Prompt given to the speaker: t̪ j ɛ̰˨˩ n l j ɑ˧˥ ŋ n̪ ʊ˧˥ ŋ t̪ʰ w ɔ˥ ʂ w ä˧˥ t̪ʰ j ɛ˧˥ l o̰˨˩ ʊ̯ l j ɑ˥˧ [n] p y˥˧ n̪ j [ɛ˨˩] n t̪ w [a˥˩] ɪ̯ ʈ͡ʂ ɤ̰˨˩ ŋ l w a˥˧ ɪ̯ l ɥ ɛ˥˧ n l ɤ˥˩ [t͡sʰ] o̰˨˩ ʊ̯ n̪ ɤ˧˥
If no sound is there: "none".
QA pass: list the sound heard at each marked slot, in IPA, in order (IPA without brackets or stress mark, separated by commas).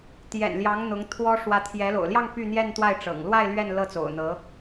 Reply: ŋ, ɛ˥˧, a˥˩, t͡s